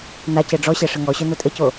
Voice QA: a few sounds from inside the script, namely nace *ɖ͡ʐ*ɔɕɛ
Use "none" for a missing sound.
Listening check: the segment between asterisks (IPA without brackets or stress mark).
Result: ɖ͡ʐ